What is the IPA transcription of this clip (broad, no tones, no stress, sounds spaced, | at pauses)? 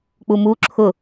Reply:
k͡p u m u ǁʰ ʊ